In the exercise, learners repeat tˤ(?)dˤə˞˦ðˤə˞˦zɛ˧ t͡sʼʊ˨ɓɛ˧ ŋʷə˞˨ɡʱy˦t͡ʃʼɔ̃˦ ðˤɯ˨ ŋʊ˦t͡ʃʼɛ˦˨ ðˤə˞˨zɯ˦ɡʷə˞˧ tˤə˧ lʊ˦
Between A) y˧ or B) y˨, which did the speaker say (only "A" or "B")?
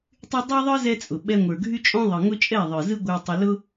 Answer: A